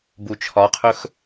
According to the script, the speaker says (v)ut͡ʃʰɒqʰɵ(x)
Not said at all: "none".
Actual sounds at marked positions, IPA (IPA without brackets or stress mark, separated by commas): b, x